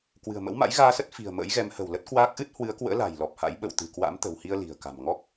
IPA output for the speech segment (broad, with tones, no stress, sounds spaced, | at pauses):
k w ɨ̤˨˩ ə̯ m ə̰˧˥ w m a̰˧˥ j ɣ aː˧ s ə˦˥ t̚ f i̤˨˩ ə̯ m ə̰ː˧˥ j ɣ ɛ˨˦ m h ə̤˨˩ w l ə˦˥ t̚ k w aː˦˥ k̚ ʔ ɨ˦˥ t̚ h w ɨ˨˦ ə̯ k w ə̰ː˧˥ l a̤˨˩ j l ɔ˨˩ p̚ h a̰˧˥ j ɓ ə̰˧˨ w t̪ ɨ̤˨˩ k w a̰˧˥ m t̪ ə̤˨˩ w h i˧ ə̯ l i̤˨˩ ə̯ k a̤˨˩ m ŋ ɔ˦˥ k̚